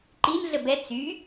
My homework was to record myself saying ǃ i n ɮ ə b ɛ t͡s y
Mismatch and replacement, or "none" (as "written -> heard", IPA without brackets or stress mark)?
none